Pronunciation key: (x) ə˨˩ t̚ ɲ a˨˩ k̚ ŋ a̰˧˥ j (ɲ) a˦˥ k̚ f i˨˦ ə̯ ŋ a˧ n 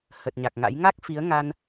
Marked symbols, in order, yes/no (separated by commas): no, no